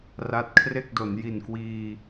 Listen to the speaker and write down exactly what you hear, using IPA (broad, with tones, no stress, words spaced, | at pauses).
ra˦˥t̚kʰre˥˩k̚do˩˦n ji˨˩nkwiː˧